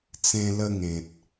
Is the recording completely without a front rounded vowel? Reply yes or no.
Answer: yes